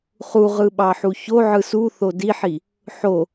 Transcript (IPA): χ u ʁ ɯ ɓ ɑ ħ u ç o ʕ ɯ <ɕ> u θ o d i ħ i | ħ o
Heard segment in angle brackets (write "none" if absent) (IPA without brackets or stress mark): s